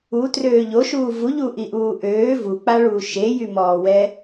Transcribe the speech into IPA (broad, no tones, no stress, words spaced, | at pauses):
utrøː ʎoʃuː vuʎuʔiʔuː ʔøː vuk͡paɭuː ʃejymɔːwɛ